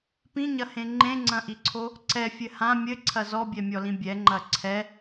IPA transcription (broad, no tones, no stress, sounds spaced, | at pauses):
p ĩ ɲ ɐ h ẽ ŋ͡ǃ ẽ ŋ͡ǀ ɐ̃ ʔ i ǀʰ o | ǀ ɛ fʲ ɘ h ã mʲ ɘ ǀʰ ɐ z ɔ bʲ ɛ mʲ ɔ l ĩ bʲ ɛ ŋ͡ǃ ɐ ǀʰ ɛ